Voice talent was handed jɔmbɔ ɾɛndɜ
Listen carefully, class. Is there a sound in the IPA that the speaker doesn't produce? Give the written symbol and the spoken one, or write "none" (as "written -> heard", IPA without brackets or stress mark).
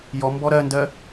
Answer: ɛ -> ɜ